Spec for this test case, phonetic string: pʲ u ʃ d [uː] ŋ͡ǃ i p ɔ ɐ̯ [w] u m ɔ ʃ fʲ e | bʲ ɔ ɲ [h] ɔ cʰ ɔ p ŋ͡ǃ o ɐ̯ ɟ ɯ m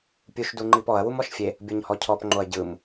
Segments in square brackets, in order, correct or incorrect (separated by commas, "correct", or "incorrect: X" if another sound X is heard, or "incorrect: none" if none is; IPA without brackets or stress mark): incorrect: u, correct, correct